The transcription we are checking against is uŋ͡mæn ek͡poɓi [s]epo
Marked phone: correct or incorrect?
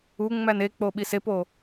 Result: correct